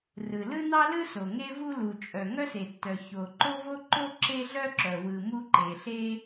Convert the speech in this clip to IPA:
rɯ˩ lɯ˥nɑ˥lɯ˥so˩ ŋe˥vu˥lu˩ t͡ʃʼœ˩ŋœ˥se˩tːœ˩ ço˩ ǃo˥vo˥ǃo˥ ǁe˥ɮœ˥ǁœ˩wɯ˩ mu˥ǃe˩ ɬe˥

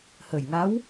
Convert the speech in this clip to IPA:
hə˨˩jŋa˧˥w

